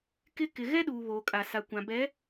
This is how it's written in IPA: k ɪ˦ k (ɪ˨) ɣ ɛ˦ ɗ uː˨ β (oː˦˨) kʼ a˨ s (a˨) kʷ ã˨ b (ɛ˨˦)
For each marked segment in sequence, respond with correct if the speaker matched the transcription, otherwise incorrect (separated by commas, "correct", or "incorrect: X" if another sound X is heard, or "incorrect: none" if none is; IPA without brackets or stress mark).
correct, incorrect: oː˨, correct, correct